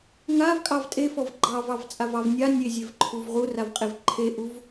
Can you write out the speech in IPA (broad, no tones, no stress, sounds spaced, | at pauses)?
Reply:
ŋ a v kʼ ɑ v tʼ e f ɔ v ɡ͡ǃ ɑ v ɑ v t͡sʼ a v ɑ v nʲ a nʲ e zʲ e v ǃʰ u v ʁ u r a v qʼ e v ǃʰ e ʔ u v